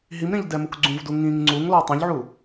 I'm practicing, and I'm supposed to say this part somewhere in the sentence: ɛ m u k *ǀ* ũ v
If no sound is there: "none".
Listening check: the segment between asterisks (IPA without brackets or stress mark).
ɡ͡ǀ